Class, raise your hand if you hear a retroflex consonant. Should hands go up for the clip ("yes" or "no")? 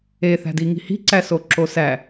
no